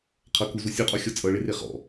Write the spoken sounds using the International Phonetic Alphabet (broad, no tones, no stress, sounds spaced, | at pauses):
qʰ ʌ k u z u sʲ u qʼ ɔ xʲ ɔ t͡sʼ ʌ ɭ e r e χ ɔ̰